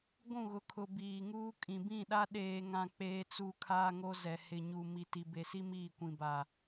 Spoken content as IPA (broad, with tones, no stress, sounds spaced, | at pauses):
ɡʷ ũ˦˨ ɣ ʊ˨ kʰ ʊ˨ b iː˨ ŋ uː˦ kʼ ĩ˨ b ĩ˦˨ ɗ a˦ ɗ eː˨ ŋ ã˨ k͡p eː˨ t͡s u˨ kʰ aː˦ ŋ o˦ z ɛ˨ h ɪ˨ ɲ u˨ m i˨ t i˨ b e˨ s i˦ m iː˦˨ kʷ ĩ˨ b a˨